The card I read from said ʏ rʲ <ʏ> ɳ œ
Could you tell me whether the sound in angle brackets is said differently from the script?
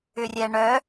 yes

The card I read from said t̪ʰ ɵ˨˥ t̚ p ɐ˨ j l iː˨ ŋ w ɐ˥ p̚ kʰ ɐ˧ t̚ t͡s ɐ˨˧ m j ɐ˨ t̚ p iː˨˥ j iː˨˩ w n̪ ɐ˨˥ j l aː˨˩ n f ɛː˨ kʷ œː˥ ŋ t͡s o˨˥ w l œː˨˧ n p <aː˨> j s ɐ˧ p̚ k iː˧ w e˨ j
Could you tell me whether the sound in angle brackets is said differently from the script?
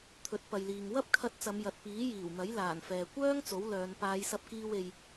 yes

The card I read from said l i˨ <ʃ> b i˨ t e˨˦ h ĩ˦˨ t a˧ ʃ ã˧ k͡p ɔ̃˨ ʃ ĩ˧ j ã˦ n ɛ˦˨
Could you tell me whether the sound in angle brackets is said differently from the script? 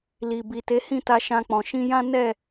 yes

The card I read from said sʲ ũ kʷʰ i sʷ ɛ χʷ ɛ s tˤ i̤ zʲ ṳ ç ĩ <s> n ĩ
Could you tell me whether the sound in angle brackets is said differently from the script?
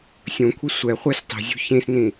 no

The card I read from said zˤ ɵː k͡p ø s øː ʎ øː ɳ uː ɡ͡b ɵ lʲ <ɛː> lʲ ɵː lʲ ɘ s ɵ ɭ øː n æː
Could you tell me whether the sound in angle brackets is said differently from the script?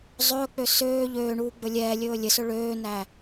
no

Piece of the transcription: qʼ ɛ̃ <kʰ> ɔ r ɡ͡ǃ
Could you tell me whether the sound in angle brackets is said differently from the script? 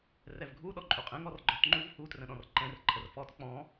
yes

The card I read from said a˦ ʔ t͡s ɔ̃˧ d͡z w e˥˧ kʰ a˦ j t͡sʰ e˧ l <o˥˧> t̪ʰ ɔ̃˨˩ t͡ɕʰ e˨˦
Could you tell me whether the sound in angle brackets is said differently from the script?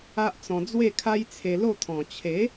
no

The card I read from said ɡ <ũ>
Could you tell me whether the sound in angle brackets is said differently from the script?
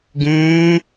yes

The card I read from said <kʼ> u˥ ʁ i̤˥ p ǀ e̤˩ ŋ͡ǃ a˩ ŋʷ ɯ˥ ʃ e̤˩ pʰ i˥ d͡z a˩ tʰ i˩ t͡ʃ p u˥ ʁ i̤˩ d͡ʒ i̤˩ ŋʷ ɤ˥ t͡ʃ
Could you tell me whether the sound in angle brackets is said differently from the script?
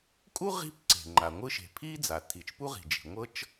no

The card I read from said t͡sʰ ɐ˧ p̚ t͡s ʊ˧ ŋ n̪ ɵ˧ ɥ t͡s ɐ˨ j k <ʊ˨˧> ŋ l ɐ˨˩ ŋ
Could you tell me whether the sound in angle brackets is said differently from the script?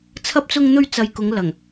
no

